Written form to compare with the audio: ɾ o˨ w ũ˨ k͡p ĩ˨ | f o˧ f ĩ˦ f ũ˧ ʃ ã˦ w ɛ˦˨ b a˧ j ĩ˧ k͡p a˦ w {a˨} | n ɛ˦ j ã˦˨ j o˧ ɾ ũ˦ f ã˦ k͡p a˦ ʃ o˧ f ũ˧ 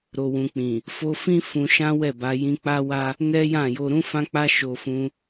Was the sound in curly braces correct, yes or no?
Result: no